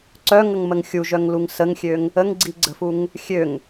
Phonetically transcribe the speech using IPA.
ǀœŋəŋməŋ xʲuʒœŋluŋ səŋxʲøŋ | əŋɡ͡ǀiɡ͡ǀə̤fuŋ | xʲøŋ

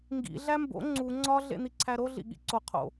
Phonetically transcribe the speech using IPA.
ŋɡḭ ɮæmbo̰ ŋ͡ǀu ŋ͡ǀɒ ɮḛn̪iǀʰæɾo ɮḭɠḭǀo qʰo̰

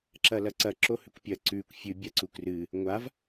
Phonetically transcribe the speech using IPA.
ǁɐlɐǀɐ ǁohʉkʷpʲɐ ǀʉkʷ fʲɨ bʲaǀukrɨ | ŋʷav

